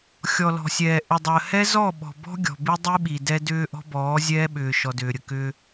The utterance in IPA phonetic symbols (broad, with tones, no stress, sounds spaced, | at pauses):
xʲ ɔ˨ l ɔ̤˨ sʲ ɛː˨ ʔ ʏ˨ dˤ əː˨ h ɛ˦ z ɔ˦˨ ɓ ɔ̤˨ b ɔ̤˦ ɡʲ ɔ̤˨ b i˦ dˤ i˦ ɓ i˨ d ɛ˦ d ʏː˦ ʔ ɔ̤˦ b ɔː˨˦ zʲ ɛː˦ ɓ ʏː˨ ʃ ɔ˨ d ʏː˨ ɾʲ ə˨ k ʏː˦